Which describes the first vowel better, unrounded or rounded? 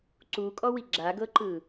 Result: rounded